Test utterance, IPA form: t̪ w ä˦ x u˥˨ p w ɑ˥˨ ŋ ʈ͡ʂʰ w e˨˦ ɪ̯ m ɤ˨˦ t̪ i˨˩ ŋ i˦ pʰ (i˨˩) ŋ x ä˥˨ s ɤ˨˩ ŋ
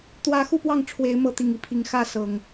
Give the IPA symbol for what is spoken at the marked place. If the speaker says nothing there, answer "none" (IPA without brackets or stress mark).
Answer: i˨˩